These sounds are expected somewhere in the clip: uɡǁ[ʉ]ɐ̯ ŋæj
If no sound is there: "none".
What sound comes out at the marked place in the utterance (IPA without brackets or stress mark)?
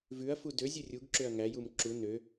ø